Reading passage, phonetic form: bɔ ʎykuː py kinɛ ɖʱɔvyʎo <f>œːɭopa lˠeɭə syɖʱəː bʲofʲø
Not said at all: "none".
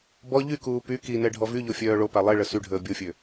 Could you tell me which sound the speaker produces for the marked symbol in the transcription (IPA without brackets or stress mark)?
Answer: fʲ